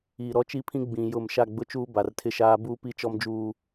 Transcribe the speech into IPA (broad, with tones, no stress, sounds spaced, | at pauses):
iː˨ ɾ ɔ˦ t͡ʃ i˦ pʰ ĩ˦ ɡ͡b ĩ˨ j ʊ˦˨ m ʃ a˦˨ ɡ͡b ʊ˦ t͡ʃ uː˦ b a˨ r tʰ ɪ˦ ʃ aː˦ b uː˦ p i˦ t͡ʃ ɔ˦ m d͡ʒ uː˦